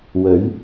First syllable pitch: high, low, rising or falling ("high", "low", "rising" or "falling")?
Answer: rising